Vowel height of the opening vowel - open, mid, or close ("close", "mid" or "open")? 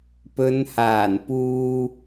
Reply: mid